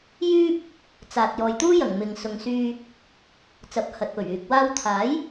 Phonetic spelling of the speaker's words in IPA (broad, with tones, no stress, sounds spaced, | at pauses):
j yː˥ p̚ | t͡s aː˨ t̚ j ɔː˨ j t̪ uː˥ j ɐ˨˩ ŋ m ɪ˨ ŋ s ʊ˨ ŋ s yː˧ | t͡s ɐ˨˥ p̚ h ɐ˨ t̚ p ɵ˨˩ ɥ yː˨ k̚ w aː˧ w t̪ʰ aː˨˥ j